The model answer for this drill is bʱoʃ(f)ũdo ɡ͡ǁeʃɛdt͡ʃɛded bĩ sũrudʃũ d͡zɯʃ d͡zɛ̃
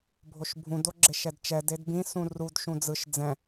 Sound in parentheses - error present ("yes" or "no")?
yes